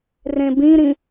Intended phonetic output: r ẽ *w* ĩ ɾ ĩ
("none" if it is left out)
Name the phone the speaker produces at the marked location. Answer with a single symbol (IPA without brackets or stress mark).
b